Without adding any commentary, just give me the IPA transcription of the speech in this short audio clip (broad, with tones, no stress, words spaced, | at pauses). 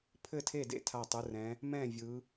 pʰɘ˥˩tʰe˥˩dḛ˥˩ tʰa˧˩tˤɯ˩˧rɛ̃˩˧ | mɛ̃˥˩vʲɯ˩˧